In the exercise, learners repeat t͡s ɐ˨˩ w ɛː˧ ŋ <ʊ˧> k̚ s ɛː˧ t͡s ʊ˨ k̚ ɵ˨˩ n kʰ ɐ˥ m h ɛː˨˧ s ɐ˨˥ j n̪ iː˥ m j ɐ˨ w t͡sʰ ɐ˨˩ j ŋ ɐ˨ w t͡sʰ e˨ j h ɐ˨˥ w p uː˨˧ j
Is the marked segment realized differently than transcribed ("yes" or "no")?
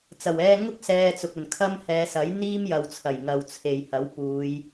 yes